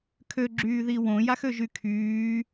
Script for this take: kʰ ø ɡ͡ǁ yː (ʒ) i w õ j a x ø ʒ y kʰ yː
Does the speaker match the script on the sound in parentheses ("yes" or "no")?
no